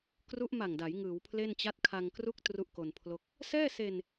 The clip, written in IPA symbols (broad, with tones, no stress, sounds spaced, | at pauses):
k r u˦˥ ʔ m a˨˩ ŋ d a˩˦ j ŋ ɯː˩˦ w pʰ l e˥˩ n t͡ɕ a˥˩ t̚ kʰ a˧ ŋ k r u˥˩ k̚ t r u˥˩ ʔ k o˧ n pʰ l o˥˩ k̚ | s ɛː˥˩ s e˧ n